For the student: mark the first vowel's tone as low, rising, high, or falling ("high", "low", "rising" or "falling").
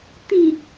low